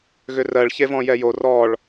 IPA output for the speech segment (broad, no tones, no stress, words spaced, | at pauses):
ɣʏrɜɭ çevɔ̃jɛjo rɔɭ